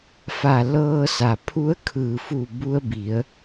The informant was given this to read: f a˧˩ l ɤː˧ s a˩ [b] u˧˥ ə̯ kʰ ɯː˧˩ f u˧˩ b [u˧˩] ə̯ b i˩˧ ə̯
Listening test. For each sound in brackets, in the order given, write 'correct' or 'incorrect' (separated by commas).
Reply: incorrect, incorrect